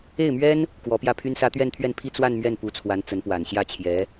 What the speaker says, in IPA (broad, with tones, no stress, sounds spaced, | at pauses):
e˥˩ ɪ̯ m ɥ ɛ˥ n | k w ɔ˧˥ p j ä˥˩ pʰ y˥ n s ä˥ t̪ ɥ ɛ˥˧ n t̪ʰ ɥ ɛ˥˧ n pʰ i˥˧ t͡s w a˥˧ n m ɥ ɛ˥˩ n p u˧˥ t͡sʰ w a˧˥ n t͡s ə˧˥ n p w a˨˩ n ɕ j ä˥˩ t͡ɕʰ j ɛ˧˥